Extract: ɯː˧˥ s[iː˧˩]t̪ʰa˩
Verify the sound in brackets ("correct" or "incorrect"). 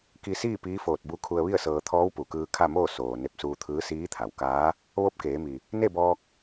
incorrect